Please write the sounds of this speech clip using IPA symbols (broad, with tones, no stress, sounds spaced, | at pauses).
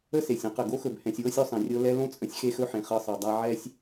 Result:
ə˥ s e˩ sʲ ə̃˥ q ə˩ ɡ o˥ x ɵ˨ b h ɛ̃˨ sʲ w ɤ˥ sʲ ɵ˦ sˤ ẽ˩ rʲ ɤ˦ l ɛ˦ l õ˥ t͡sʼ ə̃˦ sʲ x e˦ x ɵ˦ ħ ẽ˩ χ ɤ˦ sˤ ɤ˨ dˤ a˦ ʕ ɛ˥ sʲ